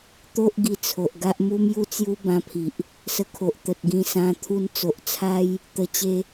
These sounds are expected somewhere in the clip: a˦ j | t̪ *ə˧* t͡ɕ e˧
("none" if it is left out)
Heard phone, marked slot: ə˧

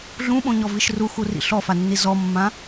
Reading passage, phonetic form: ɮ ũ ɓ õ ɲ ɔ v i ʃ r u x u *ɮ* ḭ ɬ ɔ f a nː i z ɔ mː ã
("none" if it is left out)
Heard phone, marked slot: r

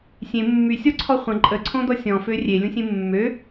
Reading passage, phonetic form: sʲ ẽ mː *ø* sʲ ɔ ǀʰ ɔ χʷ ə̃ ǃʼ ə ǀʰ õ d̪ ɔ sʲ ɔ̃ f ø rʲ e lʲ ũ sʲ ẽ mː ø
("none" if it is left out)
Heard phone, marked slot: y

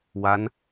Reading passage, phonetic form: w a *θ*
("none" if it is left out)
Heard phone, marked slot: n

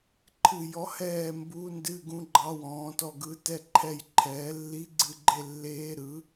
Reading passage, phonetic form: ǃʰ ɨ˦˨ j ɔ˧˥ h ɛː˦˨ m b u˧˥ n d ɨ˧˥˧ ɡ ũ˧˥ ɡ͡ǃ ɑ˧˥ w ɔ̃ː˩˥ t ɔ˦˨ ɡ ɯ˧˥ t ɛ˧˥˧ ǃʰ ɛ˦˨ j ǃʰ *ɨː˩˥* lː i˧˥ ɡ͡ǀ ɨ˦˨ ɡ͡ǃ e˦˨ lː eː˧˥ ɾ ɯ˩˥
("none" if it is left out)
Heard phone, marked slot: ɛː˩˥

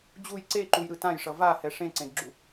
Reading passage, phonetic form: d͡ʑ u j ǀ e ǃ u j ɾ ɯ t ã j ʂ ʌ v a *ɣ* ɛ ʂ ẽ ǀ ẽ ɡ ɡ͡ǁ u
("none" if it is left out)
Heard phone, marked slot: h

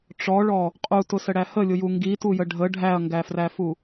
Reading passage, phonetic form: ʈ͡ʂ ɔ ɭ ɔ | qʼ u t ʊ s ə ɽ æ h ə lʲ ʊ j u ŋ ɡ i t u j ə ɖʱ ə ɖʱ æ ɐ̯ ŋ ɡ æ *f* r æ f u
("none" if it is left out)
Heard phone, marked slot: f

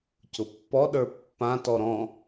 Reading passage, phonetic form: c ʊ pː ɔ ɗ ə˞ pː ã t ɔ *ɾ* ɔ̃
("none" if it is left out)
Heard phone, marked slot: ɾ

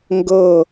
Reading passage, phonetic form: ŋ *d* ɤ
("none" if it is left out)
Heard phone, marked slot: ɡ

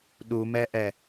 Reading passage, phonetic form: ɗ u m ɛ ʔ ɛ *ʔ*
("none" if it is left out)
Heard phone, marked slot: none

